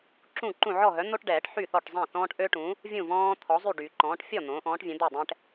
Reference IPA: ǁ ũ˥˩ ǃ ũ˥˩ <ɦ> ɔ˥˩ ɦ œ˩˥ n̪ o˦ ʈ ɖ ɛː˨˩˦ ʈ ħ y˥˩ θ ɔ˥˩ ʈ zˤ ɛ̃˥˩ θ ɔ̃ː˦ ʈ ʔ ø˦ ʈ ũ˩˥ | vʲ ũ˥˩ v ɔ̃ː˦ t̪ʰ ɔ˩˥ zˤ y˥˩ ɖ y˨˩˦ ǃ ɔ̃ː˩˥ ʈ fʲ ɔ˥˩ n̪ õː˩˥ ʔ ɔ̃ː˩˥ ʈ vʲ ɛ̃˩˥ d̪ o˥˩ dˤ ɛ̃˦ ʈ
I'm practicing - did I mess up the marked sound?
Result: yes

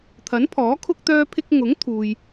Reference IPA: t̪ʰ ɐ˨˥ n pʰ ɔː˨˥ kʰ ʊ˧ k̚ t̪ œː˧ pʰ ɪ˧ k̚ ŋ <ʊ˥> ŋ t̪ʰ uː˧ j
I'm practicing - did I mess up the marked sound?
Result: yes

